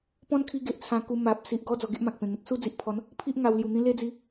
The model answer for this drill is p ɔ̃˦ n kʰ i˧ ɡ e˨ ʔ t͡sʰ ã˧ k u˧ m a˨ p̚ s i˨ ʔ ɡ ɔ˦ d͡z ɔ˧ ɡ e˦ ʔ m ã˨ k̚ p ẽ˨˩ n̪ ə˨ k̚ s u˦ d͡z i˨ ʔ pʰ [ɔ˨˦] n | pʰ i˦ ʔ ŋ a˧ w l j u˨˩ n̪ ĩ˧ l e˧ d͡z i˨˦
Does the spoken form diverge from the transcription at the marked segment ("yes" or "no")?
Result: no